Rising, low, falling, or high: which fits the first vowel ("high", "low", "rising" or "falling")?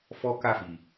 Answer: high